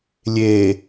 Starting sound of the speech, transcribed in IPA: lʲ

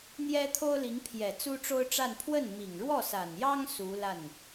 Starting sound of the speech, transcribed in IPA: n̪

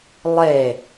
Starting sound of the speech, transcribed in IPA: lˠ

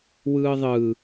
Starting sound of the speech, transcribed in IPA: w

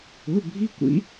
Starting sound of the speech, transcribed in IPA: ʊ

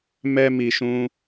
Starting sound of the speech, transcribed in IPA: m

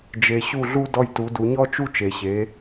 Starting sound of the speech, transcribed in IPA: d͡ʒ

